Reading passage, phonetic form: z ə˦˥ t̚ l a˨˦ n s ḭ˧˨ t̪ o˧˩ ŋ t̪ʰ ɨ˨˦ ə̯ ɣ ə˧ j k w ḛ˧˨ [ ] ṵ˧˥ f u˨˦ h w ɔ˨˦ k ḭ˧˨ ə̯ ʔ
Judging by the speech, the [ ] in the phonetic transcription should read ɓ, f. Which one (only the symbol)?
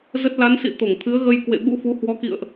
ɓ